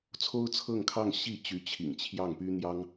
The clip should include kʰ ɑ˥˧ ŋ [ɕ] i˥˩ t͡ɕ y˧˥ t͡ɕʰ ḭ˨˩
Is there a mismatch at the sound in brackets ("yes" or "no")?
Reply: no